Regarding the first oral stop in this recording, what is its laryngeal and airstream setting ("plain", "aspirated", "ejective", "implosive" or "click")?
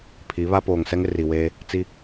aspirated